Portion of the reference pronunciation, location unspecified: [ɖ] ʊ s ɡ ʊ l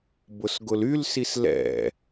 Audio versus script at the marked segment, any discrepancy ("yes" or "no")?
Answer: yes